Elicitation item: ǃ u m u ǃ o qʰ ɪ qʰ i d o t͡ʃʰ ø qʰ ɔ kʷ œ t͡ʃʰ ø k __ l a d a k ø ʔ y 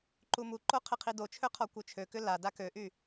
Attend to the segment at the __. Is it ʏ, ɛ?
ʏ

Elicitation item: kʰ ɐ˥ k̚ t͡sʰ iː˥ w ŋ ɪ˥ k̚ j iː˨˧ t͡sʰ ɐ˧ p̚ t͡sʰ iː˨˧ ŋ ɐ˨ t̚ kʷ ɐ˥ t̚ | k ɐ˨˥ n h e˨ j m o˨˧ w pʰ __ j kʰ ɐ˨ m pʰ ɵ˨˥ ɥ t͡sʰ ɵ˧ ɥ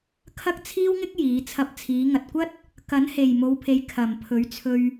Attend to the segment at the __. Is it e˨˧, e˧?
e˨˧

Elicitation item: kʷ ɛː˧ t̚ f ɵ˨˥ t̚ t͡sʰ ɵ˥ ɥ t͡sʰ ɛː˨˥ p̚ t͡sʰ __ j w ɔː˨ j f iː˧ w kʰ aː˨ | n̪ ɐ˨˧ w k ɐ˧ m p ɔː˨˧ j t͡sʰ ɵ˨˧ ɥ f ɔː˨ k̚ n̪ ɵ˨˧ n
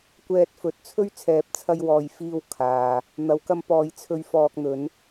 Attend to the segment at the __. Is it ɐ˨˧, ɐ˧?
ɐ˧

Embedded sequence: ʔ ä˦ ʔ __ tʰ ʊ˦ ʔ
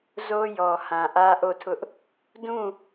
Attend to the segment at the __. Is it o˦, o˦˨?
o˦˨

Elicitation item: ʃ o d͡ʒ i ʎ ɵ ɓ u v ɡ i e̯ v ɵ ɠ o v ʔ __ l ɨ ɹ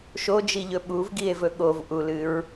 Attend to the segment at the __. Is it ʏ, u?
u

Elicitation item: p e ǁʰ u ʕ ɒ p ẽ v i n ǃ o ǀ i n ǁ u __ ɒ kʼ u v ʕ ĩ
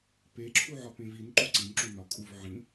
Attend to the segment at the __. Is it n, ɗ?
n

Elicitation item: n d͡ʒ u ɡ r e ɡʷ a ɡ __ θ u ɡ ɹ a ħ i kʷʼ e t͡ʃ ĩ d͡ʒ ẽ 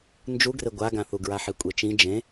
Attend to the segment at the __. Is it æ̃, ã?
ã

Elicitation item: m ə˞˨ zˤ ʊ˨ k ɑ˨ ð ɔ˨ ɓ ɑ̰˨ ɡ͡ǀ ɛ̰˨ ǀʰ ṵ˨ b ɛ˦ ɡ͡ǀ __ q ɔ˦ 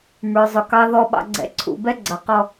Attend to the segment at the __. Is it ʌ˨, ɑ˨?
ʌ˨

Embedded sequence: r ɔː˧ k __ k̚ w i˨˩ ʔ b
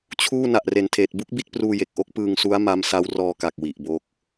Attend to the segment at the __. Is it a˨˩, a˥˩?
a˨˩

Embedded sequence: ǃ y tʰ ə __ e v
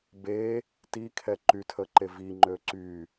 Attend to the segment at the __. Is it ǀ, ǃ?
ǃ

